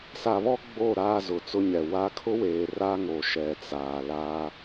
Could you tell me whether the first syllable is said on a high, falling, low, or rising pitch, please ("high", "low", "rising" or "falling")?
low